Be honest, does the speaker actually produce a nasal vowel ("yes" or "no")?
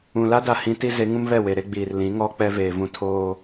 yes